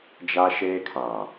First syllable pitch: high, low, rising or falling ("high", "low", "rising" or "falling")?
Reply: high